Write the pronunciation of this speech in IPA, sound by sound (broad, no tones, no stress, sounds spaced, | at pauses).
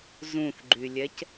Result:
z ũ θ ɡ͡ǃ y lʲ ɛ c